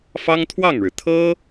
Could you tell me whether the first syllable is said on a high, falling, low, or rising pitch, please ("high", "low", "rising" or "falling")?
high